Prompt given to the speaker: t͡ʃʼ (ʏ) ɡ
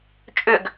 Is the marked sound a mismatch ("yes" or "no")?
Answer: no